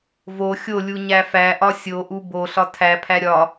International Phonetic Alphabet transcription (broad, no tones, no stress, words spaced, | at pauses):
vo xʲolʲu ɲæfæʔɒ sʲoʔu boɬɒ tʰæpʰæ ɾʲɒ